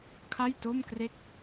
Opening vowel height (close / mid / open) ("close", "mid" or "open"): open